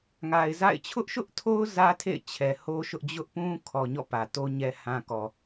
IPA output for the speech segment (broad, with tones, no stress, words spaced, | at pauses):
ŋa˨ɪ̯za̰˦˨ɪ̯ t͡ɕʰʊ˦ʔʃʊ˦ʔtʰo˦ʊ̯ zä˦tʰḛ˦˨ɪ̯ t͡ɕʰɛ˨ ho˦ʃʊ˦ʔ d͡ʑʊ˦ʔpũ˦kʰɔ˨ ɲɔ̰˦˨pä˨to˦ ɲɛ˦hã˦kɔ˨